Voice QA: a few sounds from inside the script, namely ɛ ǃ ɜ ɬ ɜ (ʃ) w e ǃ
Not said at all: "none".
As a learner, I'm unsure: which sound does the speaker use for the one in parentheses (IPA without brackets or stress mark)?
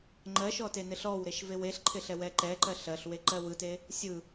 ɬ